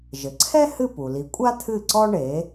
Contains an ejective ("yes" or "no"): yes